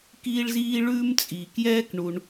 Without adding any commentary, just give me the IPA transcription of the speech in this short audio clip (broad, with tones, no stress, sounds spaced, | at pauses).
k iː˥ ɭ z iː˥ ɭ ʉː˥ m t͡sʼ iː˩ k j ɛː˥ k ɳ u˩ ɳ